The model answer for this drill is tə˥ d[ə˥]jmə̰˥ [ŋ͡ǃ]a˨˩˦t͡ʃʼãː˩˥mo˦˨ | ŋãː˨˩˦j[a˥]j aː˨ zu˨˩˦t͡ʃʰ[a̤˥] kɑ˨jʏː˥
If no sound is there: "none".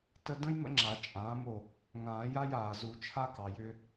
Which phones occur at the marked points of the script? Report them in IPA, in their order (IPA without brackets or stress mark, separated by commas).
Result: ə̃˥, ŋ͡ǁ, a˥, a˥